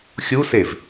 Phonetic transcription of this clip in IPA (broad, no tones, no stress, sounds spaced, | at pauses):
xʲ u s e v